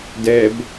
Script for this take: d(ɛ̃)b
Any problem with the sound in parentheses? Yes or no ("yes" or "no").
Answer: yes